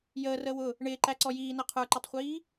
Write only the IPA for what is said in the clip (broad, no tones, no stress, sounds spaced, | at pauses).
j əː r əː w ʊ | ɳ ɪː ǃ æ ǀ ɔ j iː n ʌ qʰ ə˞ ǃ ʌ tˤ χʷ iː